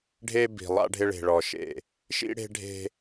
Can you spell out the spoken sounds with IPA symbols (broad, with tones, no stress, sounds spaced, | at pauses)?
ɖʱ e˦ b i̤˨ lˠ a̰˦ ɖʱ ɪ˦ ɭ e̤˨ ɭ ɔ˨ ʃ ḛ˨ | ʃ ḭ˦ ɽ e̤˦ ɖʱ e̤˦